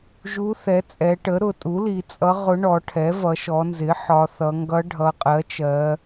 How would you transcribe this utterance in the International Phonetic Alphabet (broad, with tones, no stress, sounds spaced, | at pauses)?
ʒ u˧˥ θ ɛ˩˥ t͡sʼ ɛ˩˧ ʈ ə˩˥ ɾ ʊ˩˧ tʼ u˩˥ l i˩˧ t͡sʼ ʌ˧˥ ʁ ʊ˧˥ ɳ ɔ˩˧ ʈʰ ɛ˩˥ v ʌ˩˧ ʃ ɔ˩˧ n z ɪ˩˥ ħ ɒ˩˧ θ ʌ˩˧ ŋ ɡ ʌ˧˥ ɖʱ ʌ˩˧ qʼ ɜ˩˥ t͡ʃ ɜ˩˧